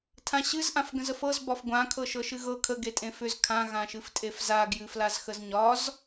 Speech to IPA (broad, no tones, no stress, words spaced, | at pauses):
tʰãɕɨz ʔãfɡə̃zəfɤz bɒfɡʷã kʰɤʃɤʃɨɣɤ kʰə ɡetʼẽfʏz kʰã ɣãʃɨftʼefza ɡjɨflazxəzɲɒz